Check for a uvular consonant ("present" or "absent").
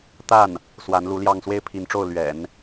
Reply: absent